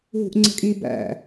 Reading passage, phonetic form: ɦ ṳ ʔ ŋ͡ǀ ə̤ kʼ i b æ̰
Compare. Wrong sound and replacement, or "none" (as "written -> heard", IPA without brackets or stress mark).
none